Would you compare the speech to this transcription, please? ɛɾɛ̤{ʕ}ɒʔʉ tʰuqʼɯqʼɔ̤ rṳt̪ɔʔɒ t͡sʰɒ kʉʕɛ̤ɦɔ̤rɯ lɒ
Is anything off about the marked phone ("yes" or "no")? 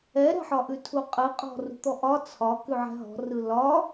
yes